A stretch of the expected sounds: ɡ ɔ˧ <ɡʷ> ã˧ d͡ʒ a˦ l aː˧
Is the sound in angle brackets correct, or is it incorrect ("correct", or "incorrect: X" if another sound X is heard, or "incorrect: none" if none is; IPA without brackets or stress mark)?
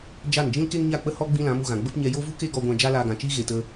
correct